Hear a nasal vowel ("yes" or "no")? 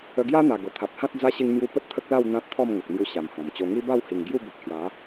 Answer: yes